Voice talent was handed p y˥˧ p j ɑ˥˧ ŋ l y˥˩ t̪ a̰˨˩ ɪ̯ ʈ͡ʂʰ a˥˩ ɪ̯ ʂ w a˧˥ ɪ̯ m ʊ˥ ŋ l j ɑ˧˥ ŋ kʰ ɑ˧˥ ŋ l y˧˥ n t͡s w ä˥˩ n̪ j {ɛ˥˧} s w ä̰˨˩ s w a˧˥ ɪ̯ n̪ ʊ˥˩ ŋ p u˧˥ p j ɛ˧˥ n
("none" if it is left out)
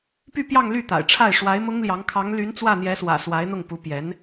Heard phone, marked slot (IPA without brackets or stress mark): ɛ˧˥